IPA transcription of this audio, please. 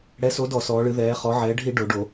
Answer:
ɽ ɛ˨˥ s o˨˥ d ɔ˧˩˧ s ɔː˩˧ ɭ ɨ˩˧ ð ɛː˩˧ χ ɔ˩˧ ʕ ɛː˩˧ ɖʱ i˧˩˧ ɖ o˩˧ ɖ o˧˩˧

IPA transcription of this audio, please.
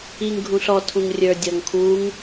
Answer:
i ŋ ɡʱ ũ ɬ ɔ tʰ ũ ŋ rʲ ə˞ dʲ ɔ ŋ kʰ u ŋ

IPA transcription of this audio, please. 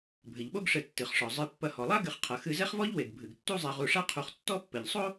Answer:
bʱ ɘ˩ ʎ ɓ o˦ ɡ ʂ ɘ˨ tː ɨ˩ χ ʂ ɔ˩ zˤ ɨ˨ pː ɐ˨ h ɔ˩ lˠ a˥ ɡ ɘ˨ χ qʰ ɐ˩ x ɨ˨ z ɛ˦ χ v ɔ˦ ʎ w e˩ ɡ bʱ ɨ˩ ɡ tː u˦ zˤ ɛ˨ ʁ u˨ ʂ a˦ qʰ u˨ χ tː ɔ˦ pː ɘ˩ ʎ sˤ o˥

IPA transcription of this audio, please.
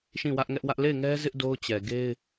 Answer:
ʃ ĩ˦˨ w ä˦ ʔ ŋ ɛ˦ ʔ w ä˦ ʔ l e˦˨ ɪ̯ ŋ ɛ˦ z ɪ˦ ʔ d o˦ ʊ̯ t͡ɕ ɛ˨ ɡ e˦ ɪ̯

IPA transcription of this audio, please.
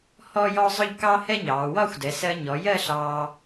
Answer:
h ɔː˥ j ɔ˥ zˤ ʊ˥˧ ʎ k ɑ˥ h ɛ˥ ɲ ɑː˩˧ w ɒ˥˧ xʷ d ɛ˩˧ s ɜ˧ ɲ ɔ˩˧ j ɜ˥˧ ɬ ɑː˧

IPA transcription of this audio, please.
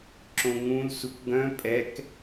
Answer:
ǁ õ ŋ ũ l s u k ɡ œ̃ pʼ ɛ k

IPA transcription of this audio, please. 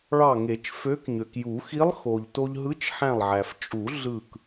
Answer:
ɭ ɑ˧˩ ŋ e˨˩˦ t͡ʃ f ø˧˥ k ɲ ø˩ k j u˨˩˦ x i˧˥ lˠ x o˩ ʎ t o˧ ʎ ɦ ɯ˧˥ t͡ʃ ħ æ̃˧˩ lˠ ʕ æ˩ f t͡ʃʼ u˨˩˦ ɮ ɯ˧˩ k

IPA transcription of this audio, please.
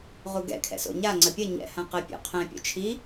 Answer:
ʁ u ɡ ɛ̰ kʰ ɛ̰ s o̰ ɲ a ŋ͡ǀ ɐ pʲ ɐ ɲ ɛ̰ h ã q ɘ pʲ o̰ qʰ ɛ̃ pʲ o̰ t͡ʃʰ i

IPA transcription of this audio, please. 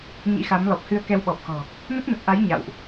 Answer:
ɲ ḭ˧˥ x a˨˦ m l ɔ˨˩ p̚ h ɨ˧ ə̯ k ɛ˧ w ɓ ɔ˨˩ p̚ x ɔ̤˨˩ | n ə˦˥ t̚ n ə˨˩ t̚ ʔ a˨˦ j ɲ a̰˧˨ w ʔ

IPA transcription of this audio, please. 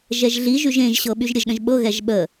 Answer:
ʒ ɛ ʒ ɮ i ʒ y ʒ ẽ ʒ ɕ ɤ ɓ y ʒ ɾʲ ə ʒ ɗ ə̃ ʒ ɓ ɤ ɣ ɛ ʒ ɓ ə

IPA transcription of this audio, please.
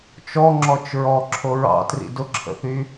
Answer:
t͡ʃ ɔ ŋ͡ǁ ɔ t͡ʃ ɹ ɔ ǁʰ o ɹ ɑ̰ t r ḭ d ʊ ǁʰ ə̰ θ y

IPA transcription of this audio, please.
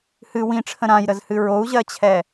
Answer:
h ɨ w ĩ ʈ͡ʂʰ ə̃ ɾ ã j ɾ ə z h ɨ ɹ o u̯ ʑ ɜ t͡ɕʰ ɛ

